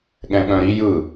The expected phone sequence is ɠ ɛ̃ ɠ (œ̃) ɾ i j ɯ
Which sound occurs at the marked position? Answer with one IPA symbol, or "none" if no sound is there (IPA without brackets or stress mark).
œ̃